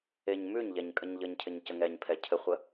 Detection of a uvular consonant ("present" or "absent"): present